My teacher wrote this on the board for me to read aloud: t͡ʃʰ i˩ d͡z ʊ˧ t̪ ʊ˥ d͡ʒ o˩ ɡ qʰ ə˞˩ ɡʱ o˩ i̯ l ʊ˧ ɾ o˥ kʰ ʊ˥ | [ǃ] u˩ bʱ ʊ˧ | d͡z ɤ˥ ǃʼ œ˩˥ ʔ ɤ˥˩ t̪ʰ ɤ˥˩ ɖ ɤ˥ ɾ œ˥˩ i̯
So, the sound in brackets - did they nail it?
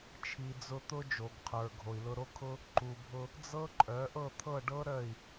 yes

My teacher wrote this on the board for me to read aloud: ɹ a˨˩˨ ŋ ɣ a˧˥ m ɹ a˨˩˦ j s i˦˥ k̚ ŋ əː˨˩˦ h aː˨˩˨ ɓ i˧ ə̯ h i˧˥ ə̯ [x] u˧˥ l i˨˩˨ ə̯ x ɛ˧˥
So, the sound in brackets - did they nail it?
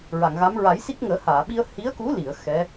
no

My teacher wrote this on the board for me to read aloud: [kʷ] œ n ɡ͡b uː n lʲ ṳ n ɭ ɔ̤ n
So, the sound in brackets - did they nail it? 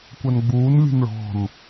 yes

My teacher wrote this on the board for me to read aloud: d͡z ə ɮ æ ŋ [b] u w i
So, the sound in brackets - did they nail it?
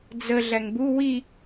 yes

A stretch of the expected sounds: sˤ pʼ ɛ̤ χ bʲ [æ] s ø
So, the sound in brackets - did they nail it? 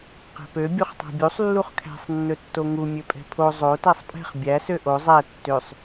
yes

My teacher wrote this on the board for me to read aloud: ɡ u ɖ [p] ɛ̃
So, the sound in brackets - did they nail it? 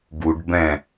no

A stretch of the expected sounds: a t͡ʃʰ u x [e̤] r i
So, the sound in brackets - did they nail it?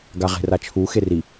no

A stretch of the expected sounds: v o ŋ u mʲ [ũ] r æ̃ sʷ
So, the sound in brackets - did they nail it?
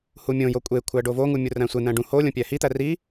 no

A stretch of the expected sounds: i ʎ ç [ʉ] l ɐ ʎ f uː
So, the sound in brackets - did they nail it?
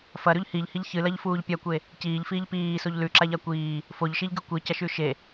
no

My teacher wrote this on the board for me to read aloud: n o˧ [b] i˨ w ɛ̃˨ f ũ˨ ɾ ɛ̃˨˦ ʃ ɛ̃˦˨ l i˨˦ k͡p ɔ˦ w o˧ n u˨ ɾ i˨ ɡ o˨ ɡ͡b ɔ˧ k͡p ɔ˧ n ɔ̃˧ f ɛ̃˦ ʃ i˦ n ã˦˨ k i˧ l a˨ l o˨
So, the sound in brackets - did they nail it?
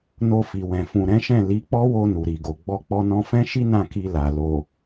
no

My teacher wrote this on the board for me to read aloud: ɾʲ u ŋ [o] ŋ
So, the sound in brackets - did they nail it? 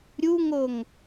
yes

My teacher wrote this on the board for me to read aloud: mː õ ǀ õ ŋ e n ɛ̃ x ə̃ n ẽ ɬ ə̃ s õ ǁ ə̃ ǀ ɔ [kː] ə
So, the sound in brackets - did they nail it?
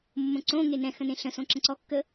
yes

